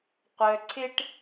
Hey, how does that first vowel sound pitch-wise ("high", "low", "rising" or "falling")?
low